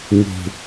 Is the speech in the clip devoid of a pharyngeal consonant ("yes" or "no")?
yes